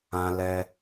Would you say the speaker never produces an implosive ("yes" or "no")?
yes